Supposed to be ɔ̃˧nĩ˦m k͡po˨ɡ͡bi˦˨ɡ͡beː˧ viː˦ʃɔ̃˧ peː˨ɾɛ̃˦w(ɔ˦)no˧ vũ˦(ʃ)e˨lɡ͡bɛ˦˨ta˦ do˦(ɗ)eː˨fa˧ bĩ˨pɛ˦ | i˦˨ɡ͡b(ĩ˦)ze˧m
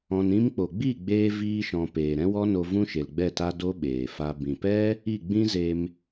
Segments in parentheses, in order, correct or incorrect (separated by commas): correct, correct, incorrect, correct